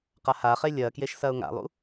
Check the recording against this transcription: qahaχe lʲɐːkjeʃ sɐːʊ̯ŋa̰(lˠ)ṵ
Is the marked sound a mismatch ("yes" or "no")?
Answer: no